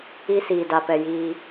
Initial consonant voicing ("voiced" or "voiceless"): voiceless